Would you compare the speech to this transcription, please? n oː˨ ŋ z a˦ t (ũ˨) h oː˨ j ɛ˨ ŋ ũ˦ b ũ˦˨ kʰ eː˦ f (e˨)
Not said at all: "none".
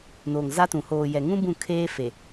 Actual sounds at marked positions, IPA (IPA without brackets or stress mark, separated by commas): ũ˨, e˨